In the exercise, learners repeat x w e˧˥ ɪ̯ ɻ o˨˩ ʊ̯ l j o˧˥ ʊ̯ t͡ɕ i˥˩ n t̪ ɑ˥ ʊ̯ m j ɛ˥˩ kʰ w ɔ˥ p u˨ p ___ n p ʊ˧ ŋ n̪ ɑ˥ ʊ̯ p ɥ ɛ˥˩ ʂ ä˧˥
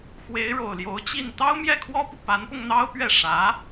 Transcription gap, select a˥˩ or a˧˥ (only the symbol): a˧˥